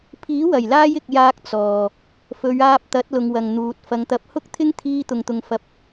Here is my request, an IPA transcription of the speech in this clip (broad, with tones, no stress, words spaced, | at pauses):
pʰiː˨˥wɐ˨˩jlaː˧j ɪ˨k̚jaː˧k̚ t͡sɔː˨ | fɵ˨˧ɥaː˧p̚t̪ɐ˨˥t̚lʊ˨ŋ wɐ˨ŋn̪uː˨t̚ fɐ˨ŋt̪ɐ˨˥p̚hʊ˥k̚t̪ʰɪ˥ŋ t̪ʰiː˧t̪ʊ˨ŋt̪ʊ˨ŋfɐ˨˥p̚